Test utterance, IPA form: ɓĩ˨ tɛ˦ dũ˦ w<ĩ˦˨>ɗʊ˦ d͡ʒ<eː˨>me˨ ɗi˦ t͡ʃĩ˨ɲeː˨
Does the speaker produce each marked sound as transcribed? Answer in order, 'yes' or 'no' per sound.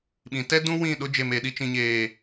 yes, no

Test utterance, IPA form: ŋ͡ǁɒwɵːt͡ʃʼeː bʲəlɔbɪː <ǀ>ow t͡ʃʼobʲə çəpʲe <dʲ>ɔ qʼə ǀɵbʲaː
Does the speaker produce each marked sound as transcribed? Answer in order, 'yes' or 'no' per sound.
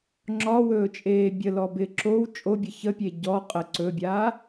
no, no

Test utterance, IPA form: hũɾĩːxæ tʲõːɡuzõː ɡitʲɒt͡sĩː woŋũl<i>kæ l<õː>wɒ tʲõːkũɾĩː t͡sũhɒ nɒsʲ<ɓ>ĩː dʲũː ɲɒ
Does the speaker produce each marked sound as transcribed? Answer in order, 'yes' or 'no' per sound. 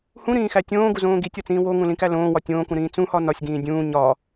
no, yes, no

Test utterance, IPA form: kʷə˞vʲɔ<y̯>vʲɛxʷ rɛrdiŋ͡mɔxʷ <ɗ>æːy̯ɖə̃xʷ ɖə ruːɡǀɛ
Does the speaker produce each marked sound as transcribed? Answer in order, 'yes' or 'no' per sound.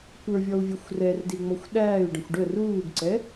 no, yes

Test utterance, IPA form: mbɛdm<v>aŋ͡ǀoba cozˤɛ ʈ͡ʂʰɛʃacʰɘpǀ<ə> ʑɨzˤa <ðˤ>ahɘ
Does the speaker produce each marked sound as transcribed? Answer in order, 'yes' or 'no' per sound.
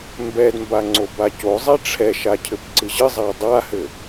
no, no, no

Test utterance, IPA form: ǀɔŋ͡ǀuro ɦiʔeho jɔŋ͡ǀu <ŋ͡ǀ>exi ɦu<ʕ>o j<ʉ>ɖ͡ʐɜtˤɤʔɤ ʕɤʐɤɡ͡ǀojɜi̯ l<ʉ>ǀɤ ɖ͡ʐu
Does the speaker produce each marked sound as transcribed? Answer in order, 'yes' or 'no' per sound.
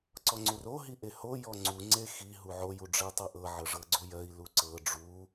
yes, yes, no, no

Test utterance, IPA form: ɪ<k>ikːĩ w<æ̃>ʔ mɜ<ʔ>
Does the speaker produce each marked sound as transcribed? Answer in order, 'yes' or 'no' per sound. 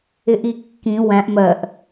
no, yes, yes

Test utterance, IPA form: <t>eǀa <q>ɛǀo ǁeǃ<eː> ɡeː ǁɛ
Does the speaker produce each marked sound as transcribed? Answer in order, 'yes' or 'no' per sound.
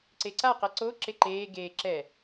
no, yes, yes

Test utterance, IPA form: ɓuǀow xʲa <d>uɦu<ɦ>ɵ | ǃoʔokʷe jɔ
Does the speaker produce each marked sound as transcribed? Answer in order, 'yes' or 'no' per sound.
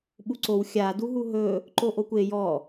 yes, yes

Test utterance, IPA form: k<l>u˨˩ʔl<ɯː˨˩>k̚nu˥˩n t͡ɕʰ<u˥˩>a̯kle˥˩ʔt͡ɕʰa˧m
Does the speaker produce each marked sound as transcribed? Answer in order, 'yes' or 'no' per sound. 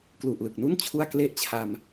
yes, no, yes

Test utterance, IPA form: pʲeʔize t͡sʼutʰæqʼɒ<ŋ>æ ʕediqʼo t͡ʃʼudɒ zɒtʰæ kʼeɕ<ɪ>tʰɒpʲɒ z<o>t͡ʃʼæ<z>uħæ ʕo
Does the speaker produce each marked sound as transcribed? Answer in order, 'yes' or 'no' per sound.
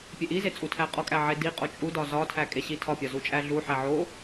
no, no, no, no

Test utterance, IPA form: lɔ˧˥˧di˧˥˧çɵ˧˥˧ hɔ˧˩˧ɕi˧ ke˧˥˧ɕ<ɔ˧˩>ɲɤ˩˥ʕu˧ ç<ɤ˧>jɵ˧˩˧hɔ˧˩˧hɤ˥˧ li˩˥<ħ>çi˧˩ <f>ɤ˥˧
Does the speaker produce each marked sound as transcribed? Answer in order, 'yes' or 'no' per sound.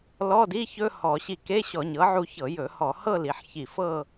no, no, yes, yes

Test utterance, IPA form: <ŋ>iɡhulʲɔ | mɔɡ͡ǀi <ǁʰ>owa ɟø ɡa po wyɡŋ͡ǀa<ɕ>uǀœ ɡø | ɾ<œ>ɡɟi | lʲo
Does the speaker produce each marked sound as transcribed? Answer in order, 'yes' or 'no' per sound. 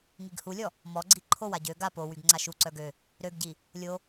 yes, no, no, no

